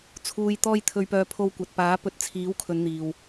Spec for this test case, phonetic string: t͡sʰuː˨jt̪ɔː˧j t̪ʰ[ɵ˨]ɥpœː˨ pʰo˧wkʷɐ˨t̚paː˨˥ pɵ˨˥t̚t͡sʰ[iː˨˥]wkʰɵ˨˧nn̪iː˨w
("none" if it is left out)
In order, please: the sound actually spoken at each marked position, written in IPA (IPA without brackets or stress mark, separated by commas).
ɵ˨, iː˨˥